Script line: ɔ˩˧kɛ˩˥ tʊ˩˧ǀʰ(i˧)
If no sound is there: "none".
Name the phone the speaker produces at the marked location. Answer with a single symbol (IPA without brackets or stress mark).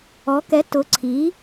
i˩˧